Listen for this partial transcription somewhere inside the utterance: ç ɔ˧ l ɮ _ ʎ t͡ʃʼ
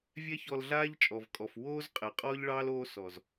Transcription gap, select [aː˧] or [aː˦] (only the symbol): aː˦